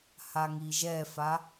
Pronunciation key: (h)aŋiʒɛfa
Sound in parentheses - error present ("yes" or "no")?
no